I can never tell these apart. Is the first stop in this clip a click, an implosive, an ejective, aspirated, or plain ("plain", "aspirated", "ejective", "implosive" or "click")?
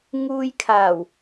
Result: aspirated